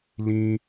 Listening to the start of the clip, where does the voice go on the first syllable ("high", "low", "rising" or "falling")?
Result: high